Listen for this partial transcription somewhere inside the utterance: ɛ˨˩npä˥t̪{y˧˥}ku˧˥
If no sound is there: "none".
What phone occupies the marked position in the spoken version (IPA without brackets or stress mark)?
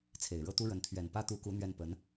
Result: u˧˥